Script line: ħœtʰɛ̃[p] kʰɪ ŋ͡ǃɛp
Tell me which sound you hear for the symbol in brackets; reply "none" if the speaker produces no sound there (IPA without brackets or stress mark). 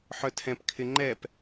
p